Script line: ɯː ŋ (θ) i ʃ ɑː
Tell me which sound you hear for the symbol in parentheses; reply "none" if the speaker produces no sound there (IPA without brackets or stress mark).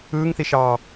θ